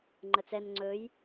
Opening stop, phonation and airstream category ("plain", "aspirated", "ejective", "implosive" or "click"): click